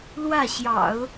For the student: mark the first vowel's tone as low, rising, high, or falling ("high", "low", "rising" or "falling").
falling